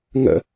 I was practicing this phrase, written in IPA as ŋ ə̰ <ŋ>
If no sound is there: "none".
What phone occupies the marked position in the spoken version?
none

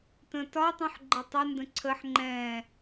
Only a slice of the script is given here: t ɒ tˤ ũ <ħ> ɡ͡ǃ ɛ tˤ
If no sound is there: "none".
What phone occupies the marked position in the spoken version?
ħ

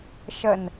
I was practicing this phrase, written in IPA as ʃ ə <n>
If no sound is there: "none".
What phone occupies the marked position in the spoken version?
n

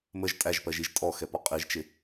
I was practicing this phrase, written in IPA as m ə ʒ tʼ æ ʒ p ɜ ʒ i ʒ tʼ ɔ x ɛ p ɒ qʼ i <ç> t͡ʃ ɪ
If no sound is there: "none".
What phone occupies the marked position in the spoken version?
ʒ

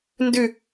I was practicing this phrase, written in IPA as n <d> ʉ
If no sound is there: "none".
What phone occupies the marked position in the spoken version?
d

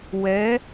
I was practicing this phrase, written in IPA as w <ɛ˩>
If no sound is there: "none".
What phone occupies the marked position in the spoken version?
ɛ˨˦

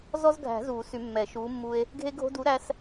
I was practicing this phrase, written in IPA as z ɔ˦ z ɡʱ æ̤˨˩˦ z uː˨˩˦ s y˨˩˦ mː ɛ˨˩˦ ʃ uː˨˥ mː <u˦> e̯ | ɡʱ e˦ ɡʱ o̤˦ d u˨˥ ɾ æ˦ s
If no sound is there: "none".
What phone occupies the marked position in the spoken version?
u˦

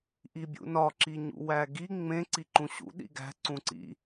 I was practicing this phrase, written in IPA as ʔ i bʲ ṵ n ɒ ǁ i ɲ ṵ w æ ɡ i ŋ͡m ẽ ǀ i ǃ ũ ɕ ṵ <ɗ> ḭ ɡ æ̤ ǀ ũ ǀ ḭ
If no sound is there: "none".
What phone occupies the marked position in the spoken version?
ɗ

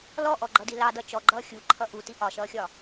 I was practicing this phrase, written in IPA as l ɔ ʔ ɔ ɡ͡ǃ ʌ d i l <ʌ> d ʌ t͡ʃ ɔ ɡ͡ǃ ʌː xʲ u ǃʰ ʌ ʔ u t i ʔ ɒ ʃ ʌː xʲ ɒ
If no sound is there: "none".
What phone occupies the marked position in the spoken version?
ɑ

